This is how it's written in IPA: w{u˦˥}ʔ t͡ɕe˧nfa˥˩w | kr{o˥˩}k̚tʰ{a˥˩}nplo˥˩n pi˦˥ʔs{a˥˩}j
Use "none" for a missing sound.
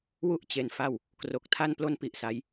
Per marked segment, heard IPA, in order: u˥˩, o˨˩, a˥˩, a˦˥

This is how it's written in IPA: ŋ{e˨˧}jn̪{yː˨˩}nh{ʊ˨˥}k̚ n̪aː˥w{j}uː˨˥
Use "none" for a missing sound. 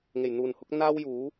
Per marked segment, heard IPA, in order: e˨˩, uː˨˩, ʊ˨˥, j

